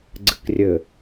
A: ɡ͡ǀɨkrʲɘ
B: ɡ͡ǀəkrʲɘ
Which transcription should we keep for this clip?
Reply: A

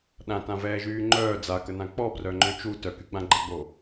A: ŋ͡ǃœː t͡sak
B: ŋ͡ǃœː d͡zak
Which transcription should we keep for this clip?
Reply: B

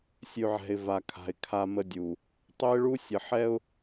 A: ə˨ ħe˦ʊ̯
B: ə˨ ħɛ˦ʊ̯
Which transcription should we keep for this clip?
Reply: B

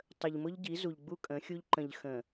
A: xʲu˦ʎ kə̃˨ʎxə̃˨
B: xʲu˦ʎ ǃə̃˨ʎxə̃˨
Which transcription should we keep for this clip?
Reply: B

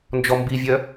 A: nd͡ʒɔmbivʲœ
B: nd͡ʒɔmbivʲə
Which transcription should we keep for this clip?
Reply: A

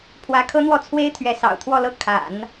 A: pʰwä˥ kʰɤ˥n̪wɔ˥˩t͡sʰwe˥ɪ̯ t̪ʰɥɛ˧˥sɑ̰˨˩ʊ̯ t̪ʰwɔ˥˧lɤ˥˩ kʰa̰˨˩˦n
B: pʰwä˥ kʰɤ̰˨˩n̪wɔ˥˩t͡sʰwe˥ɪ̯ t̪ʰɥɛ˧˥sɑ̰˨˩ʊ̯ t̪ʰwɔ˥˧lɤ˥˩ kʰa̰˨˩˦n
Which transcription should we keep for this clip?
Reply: A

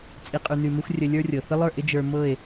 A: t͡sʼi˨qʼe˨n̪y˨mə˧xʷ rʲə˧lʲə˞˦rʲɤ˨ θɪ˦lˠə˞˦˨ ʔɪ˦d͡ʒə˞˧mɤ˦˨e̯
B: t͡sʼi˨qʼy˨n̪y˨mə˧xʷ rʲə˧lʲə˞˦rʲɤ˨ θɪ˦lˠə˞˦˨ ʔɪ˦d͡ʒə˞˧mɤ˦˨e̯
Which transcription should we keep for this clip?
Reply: B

